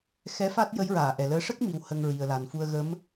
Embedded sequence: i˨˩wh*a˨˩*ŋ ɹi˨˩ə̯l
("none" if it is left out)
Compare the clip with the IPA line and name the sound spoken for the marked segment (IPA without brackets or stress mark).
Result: ə˨˩